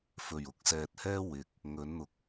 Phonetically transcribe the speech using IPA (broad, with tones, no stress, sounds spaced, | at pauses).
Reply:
f ɵ˨˩ ɥ ʊ˨ k̚ s ɛː˨ t̚ h ɛː˥ w ɪ˨ k̚ | ŋ ɵ˨˥ n n̪ ʊ˨ k̚